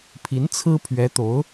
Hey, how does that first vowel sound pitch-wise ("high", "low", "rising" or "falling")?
rising